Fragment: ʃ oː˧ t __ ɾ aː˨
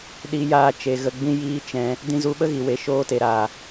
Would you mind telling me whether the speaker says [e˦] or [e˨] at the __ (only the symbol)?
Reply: e˨